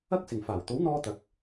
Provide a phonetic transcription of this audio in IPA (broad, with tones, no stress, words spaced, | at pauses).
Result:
ɐ˥k̚sɪ˨˩ŋ faː˨˩wt̪o˨˥wn̪ɔː˧ t̪ɐ˨˥k̚